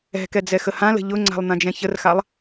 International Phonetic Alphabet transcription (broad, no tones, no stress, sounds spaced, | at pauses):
ɛ̤ k ɛ d͡z ɛ x ə h ã l ə̤ ʎ ʊ ŋ͡ǀ a̤ lˠ n̪ ã d͡ʒ ɛ̃ ç ə r x a lˠ